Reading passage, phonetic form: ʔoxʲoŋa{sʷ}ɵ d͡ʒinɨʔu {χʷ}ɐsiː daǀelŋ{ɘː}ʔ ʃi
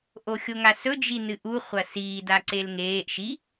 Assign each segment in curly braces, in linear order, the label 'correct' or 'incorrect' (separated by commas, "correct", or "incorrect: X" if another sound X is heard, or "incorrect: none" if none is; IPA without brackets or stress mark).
incorrect: s, correct, incorrect: eː